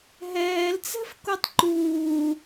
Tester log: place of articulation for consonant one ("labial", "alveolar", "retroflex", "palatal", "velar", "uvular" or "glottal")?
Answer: glottal